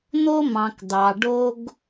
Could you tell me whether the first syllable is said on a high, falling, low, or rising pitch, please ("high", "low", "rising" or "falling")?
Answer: high